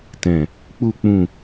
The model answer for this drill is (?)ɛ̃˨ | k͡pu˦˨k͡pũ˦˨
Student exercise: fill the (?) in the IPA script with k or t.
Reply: t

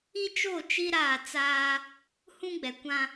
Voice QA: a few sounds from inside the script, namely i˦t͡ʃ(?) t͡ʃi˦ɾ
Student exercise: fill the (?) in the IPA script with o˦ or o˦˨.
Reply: o˦˨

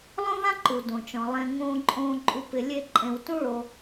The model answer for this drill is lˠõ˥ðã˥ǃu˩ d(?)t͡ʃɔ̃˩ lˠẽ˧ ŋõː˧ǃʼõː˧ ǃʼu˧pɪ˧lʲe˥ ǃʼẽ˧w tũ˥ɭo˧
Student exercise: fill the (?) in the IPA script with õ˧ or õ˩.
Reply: õ˩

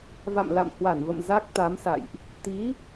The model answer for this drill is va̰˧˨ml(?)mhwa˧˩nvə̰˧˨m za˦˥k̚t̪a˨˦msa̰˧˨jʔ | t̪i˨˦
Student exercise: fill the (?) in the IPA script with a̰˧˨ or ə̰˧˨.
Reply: a̰˧˨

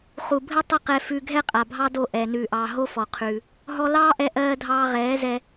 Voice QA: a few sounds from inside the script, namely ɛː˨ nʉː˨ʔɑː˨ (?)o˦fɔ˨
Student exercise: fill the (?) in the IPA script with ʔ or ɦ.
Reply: ɦ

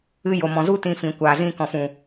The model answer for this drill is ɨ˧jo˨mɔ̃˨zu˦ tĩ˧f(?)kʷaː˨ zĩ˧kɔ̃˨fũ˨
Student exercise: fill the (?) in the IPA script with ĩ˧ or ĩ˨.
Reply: ĩ˨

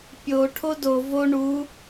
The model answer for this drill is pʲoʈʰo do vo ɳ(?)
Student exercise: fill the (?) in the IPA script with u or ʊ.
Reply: u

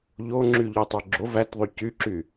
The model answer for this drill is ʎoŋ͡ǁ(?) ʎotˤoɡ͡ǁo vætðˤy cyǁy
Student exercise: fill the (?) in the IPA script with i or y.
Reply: y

